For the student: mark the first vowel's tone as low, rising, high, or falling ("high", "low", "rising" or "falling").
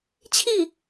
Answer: falling